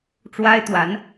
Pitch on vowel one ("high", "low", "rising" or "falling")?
high